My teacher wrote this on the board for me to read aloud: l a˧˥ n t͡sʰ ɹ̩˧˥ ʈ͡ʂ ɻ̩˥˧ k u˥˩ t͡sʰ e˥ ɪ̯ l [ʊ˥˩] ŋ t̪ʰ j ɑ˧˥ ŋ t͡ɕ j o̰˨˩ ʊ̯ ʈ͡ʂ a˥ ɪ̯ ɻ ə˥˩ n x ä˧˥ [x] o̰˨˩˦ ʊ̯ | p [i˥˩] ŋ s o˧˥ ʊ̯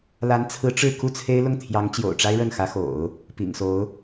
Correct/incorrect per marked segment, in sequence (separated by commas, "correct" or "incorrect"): correct, correct, incorrect